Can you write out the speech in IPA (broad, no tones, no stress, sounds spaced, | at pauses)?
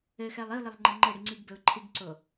ɘ x ɛ lˠ i ʊ̯ l ɘ lˠ ŋ͡ǃ ɘ ŋ͡ǃ ɘ ɽ i ŋ͡ǀ i ɡ b ɘ ʊ̯ ǃʰ i ɡ ǀ o